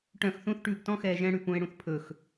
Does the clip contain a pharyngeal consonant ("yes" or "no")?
no